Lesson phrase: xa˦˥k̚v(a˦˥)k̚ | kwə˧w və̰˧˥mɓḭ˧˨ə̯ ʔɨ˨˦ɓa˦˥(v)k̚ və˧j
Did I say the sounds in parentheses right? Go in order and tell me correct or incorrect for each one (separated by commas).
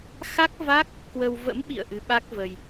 correct, incorrect